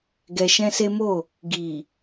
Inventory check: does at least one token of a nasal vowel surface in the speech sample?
yes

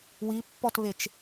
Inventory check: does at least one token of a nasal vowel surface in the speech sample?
no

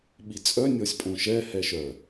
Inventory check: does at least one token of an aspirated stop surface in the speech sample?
no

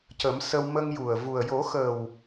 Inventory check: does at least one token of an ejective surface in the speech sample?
no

